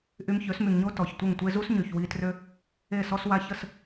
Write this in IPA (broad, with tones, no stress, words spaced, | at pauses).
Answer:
ʔy˧mçø˨˦smy˨ŋɲo˦ tɔ˨çtʷə˦˨ŋtʷe˦ zu˦sɲy˨çwi˧trø˦ | e˦˨sɔ˦swa˦ çə˦˨s